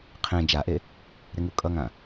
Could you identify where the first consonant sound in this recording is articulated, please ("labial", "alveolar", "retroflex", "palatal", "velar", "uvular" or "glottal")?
uvular